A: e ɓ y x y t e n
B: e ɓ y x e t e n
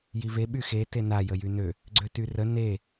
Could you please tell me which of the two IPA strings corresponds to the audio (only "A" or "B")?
B